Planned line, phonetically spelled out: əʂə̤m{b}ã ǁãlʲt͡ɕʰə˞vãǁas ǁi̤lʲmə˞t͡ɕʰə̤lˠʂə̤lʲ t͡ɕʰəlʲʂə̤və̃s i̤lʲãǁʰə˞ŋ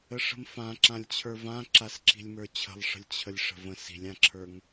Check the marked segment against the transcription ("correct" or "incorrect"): incorrect